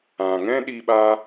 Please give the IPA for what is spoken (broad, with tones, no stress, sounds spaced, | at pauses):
ã˨ ŋ ɛ̃˦ ɗ i˧ ɓ aː˧